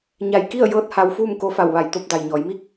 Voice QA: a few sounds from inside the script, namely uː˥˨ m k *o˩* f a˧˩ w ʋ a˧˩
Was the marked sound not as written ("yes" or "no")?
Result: yes